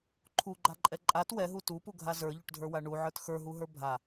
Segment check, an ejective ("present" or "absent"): present